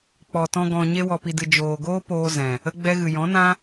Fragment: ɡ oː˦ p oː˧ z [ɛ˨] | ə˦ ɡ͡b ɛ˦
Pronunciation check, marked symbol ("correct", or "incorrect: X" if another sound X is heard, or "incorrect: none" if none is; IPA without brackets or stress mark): incorrect: ɛ̃˨